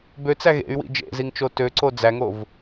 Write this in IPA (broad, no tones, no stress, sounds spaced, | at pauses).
b ø t͡s æ ɣ ḛ y̯ w ḭ d͡ʒ ḛ z i ŋ t͡ʃ o t ø ǀ o d͡z æ ŋ o v